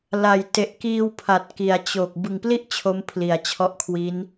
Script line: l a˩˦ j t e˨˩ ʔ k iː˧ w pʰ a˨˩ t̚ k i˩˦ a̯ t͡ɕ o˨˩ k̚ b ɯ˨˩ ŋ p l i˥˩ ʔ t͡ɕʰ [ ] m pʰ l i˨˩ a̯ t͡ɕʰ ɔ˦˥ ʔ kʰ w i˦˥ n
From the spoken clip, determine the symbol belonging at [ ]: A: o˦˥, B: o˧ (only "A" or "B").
A